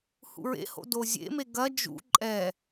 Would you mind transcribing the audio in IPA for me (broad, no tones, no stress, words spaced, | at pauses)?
hṵɹḛho̰ dozʲḛme ɡɐ d͡ʒṵ ǃʼɛ